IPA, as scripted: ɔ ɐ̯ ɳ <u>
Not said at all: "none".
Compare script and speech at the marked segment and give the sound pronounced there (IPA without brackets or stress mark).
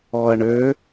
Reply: ø